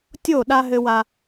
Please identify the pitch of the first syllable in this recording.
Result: falling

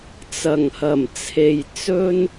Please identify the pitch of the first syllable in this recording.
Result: low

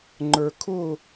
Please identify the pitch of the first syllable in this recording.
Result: low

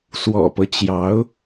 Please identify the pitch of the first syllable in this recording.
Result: low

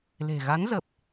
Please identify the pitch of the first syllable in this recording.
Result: low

